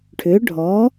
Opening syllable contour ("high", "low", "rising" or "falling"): rising